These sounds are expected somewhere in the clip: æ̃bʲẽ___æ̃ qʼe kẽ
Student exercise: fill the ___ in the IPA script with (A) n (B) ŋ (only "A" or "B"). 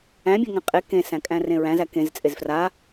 B